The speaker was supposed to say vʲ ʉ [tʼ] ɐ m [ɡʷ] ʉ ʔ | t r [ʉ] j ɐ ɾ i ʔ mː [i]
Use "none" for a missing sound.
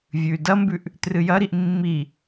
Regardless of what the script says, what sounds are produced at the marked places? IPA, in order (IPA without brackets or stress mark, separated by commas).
d, b, ɨ, i